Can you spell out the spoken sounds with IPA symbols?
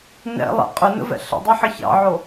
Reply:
nɛ̰lˠɛ̰ qʼʏnə̰vɛ̰ ɬə̰dˤiħə çɑ̰ʕo

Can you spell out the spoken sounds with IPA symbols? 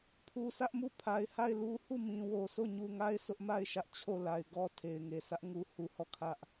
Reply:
pʰu˨sʰä˦ʔmu˦˨ pʰa˨ɪ̯ha˦˨ɪ̯lu˦ hu˦˨mĩ˨wo˨sʰo˦˨ ɲu˨ŋa˦ɪ̯ sʰʊ˦ʔma˦˨ɪ̯ ʃä˦ʔt͡ɕʰo˦˨la˨ɪ̯ ɡɔ˦ tʰe˨ɪ̯ŋe˨sʰä˦ʔŋu˦ hu˦hɔ˦˨ kʰä˦ʔ

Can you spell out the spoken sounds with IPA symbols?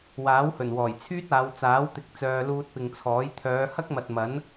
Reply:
waː˨˥whɵ˨˩n wɔː˨˩jt͡sʰyː˥t̚aː˨˧w t͡saː˨˥wt̪ɪ˨˥k̚t͡sœː˨ luː˧t̚pɪ˨ŋt͡sʰɔː˨˥j t̪ʰœː˨˧hɐ˥k̚mɐ˨t̚ mɐ˨˥n

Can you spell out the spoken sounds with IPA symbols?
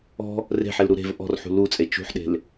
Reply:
ɔ̤ | re̤ħelɾu ɾe̤v ʔɔ̤rħṳ lut͡sʼe t͡ʃṳħɗe̤l

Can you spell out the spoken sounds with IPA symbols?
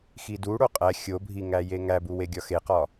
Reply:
xiduɽo qʼæ xʲobʱi ŋæjeŋæbu weɡʲɒxeqɒ

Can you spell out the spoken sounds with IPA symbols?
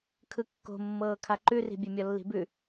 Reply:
kʰɯkːo̤mːɤː kʰaǃʉri̤ bʲemʲɔlːi̤bʉ

